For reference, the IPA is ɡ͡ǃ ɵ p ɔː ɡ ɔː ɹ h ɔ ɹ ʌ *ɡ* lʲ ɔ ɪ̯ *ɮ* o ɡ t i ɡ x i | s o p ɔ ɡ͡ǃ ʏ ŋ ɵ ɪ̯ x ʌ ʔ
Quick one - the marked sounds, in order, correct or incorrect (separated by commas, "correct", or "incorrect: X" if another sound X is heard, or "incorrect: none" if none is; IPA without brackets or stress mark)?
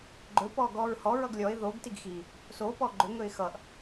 correct, incorrect: ð